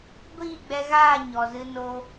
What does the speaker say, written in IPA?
ɡʷ iː˦˨ ɡ͡b ɛ˧ ɣ aː˦˨ ɲ ɔ˨ z ɨ˧ n o˧

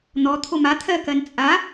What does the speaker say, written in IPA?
n̪ ɔ t̪ʰ o m a t̪ʰ ɜ k ɜ n t͡sʼ a

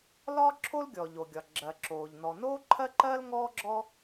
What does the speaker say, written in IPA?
l ɒː˥ ǁʰ o˥ l ɡʲ ɔ˩ ʎ o˩ ɡʲ ɒ˩ ɡ͡ǁ ɜ˩ ǁ oː˩ ʎ n ɔ˩ n oː˥ ǃʰ ɜ˥ ǃ ɜː˥ l ŋ ɔː˥ ɡ͡ǁ ɔ˥

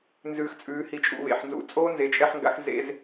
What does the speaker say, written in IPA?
n z ʉː˧ x t͡sʼ ʉː˨˦ h i˧ t͡ʃʼ ṵ˧ β ḛ˨ ħ n z ṵ˧ t͡sʼ oː˦ n z e˨ t͡ʃʼ ɛ˧ ħ ŋ ɡ a̰˧ x z ḛ˧ z

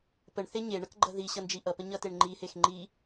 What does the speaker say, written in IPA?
p ə ɳ θ e ɲ e ɳ ʌ k ɡ͡ǃ ʌ ð i ɕ ʌ n d͡ʒ i ʔ ʌ p ə ɲ ʌ t e ɳ ŋ͡ǃ i h e x ŋ͡ǃ i

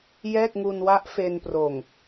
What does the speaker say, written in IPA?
j ɛː˥˩ k̚ ŋ u˧ n w a˦˥ ʔ f e˧ n p r oː˨˩ ŋ

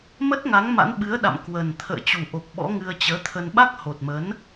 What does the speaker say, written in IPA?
m ə˦˥ t̚ ŋ a˨˦ ŋ m a̰˧˥ n ɓ ɨ˨˦ ə̯ ɗ a̰˧˨ m k w ə˨˩ n t̪ʰ ə̰ː˧˨ t͡ɕ u˨˩ ʔ o˨˩ k̚ ɓ ɔ̰˧˥ ŋ ɨ˧ ə̯ t͡ɕ əː˨˦ t̪ʰ ə˧ n ɓ a˦˥ k̚ h o˨˩ t̚ m ə˨˦ n

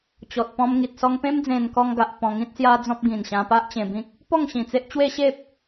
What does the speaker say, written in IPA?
t͡ɕ ɔ˨ t̚ p ɔ̃˧ m ŋ i˨ t̚ s ɔ˧ ŋ p ẽ˦ m d͡z ẽ˧ n k ɔ˧ ŋ ɡ a˨ ʔ p ɔ̃˧ ŋ ĩ˦ t̚ s j a˦ d͡z ɔ̃˦ p̚ ɡ ĩ˨˩ n ɕ ã˧ p a˦ ʔ t͡ɕ ẽ˧ b ĩ˦ k̚ | p ɔ˥˧ ŋ ɕ ĩ˨˩ t͡s e˦ ʔ t͡ɕ w e˦ ɕ e˦ p̚

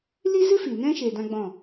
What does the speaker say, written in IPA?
l i˦ z ɨ˦ f i˨ n ɛ̃˦ ʃ eː˧ d ã˦ ɡ͡b ɔ̃˦˨

